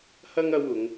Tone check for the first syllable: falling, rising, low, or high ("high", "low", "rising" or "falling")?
high